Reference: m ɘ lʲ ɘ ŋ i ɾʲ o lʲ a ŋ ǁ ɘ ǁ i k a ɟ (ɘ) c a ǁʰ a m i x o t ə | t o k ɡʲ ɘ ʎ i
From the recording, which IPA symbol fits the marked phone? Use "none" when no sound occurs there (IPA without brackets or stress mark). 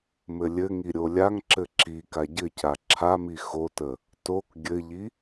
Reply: ɘ